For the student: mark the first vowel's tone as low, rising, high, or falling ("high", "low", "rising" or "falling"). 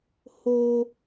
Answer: high